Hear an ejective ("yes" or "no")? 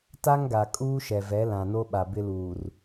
yes